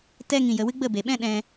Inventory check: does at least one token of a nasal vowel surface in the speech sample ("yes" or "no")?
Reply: yes